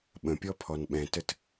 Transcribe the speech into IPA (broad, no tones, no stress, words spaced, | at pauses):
ɓə̃pʲɔpʰɔn ɓɛ̃tət